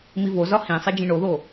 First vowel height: high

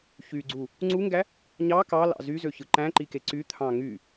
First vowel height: high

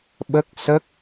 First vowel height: mid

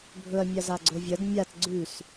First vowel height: mid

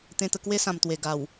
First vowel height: mid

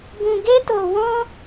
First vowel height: high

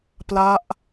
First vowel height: low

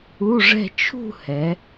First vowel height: high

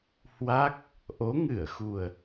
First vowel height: low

